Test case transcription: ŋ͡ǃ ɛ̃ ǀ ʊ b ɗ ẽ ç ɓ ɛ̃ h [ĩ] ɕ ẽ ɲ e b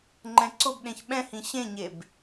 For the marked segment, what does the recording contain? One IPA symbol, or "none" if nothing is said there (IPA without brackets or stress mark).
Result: ĩ